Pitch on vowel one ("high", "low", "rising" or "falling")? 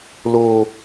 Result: high